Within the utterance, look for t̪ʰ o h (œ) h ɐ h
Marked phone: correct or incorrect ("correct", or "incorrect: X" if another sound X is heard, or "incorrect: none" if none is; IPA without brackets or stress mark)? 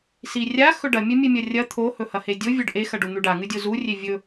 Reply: incorrect: ɵ